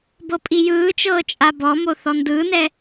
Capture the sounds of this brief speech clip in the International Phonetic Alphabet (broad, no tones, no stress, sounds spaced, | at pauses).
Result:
b ɤ pʼ i j ɯː t͡ʃ ɤː t͡ʃʼ a b ɔ m o θ ɔ n d ɯː n ɛ